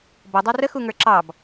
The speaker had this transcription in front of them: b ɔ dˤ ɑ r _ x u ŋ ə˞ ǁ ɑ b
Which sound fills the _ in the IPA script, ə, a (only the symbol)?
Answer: ə